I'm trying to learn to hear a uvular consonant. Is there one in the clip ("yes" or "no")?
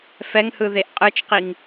yes